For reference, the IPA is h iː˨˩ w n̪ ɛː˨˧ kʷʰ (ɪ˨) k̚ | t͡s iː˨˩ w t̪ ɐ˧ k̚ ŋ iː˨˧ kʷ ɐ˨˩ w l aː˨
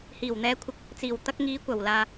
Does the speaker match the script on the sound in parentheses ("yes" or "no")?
yes